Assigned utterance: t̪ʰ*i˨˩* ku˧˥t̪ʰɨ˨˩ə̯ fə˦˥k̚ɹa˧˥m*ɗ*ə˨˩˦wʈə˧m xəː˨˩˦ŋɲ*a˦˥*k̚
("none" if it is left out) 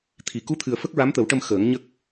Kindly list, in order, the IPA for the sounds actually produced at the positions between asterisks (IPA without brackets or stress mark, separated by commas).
i˨˩, t̪, ə˦˥